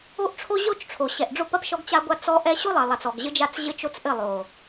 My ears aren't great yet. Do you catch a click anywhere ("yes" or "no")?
no